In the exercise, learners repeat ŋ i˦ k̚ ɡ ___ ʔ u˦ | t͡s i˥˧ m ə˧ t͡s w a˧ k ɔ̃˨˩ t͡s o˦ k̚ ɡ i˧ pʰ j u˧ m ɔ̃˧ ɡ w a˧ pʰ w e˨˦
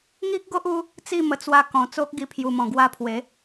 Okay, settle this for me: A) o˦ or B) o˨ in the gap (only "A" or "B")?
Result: A